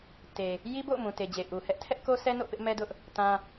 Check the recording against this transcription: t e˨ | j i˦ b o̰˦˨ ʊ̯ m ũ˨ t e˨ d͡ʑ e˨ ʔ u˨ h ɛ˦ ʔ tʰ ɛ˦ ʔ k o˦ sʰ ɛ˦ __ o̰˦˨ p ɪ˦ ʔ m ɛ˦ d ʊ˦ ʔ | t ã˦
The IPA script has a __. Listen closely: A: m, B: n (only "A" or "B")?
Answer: B